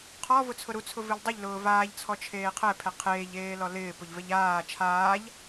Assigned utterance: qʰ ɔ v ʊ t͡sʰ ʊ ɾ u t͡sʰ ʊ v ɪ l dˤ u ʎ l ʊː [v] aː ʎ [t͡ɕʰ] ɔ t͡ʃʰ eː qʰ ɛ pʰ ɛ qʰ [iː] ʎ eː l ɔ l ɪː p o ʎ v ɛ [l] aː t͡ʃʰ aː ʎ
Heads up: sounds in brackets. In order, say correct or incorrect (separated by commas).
correct, incorrect, incorrect, incorrect